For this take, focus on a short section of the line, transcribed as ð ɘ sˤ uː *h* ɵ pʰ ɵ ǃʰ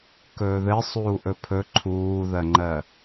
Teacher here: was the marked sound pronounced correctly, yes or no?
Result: no